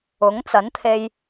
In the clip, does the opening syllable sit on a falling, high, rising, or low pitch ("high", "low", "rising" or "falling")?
rising